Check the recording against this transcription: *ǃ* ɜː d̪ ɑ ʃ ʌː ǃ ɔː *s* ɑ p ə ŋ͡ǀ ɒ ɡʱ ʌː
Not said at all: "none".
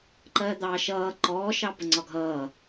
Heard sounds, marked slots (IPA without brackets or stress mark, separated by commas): ǃ, ʃ